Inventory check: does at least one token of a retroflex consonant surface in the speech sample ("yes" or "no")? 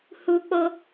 no